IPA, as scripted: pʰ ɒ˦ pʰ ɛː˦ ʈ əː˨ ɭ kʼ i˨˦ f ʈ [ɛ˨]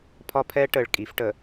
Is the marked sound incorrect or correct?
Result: incorrect